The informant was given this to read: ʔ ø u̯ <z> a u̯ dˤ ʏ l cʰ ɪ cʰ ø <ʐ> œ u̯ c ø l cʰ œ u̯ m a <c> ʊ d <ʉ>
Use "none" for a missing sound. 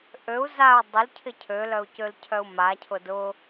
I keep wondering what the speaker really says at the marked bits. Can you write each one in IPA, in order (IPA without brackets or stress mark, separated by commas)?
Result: z, l, cʰ, ʊ